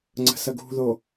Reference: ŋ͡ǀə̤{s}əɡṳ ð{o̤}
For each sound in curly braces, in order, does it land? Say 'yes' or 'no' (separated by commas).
yes, no